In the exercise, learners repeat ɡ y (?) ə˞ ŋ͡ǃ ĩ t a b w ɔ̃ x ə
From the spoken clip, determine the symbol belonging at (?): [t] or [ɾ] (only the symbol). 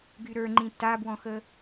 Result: ɾ